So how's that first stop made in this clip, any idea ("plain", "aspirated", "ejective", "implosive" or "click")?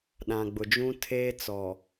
implosive